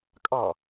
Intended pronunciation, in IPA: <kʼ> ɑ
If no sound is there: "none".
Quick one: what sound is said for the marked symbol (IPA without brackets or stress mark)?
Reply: kʼ